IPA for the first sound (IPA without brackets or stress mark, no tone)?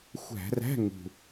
xʷ